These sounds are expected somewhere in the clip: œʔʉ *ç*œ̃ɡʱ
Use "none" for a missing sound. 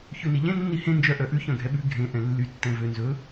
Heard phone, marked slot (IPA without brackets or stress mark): ç